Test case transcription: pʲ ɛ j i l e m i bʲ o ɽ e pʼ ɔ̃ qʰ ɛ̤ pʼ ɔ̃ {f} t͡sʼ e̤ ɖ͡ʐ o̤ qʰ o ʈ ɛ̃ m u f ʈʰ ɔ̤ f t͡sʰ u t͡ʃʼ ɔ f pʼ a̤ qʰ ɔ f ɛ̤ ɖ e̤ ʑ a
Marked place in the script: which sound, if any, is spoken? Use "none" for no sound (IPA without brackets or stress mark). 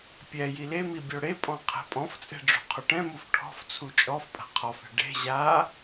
f